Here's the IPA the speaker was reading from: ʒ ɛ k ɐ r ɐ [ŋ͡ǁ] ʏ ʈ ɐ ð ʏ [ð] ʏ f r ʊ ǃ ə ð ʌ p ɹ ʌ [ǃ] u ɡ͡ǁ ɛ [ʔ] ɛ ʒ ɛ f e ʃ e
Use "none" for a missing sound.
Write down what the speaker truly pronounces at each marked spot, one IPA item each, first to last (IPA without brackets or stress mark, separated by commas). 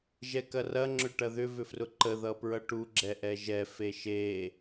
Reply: ŋ͡ǁ, v, ʈ, ʔ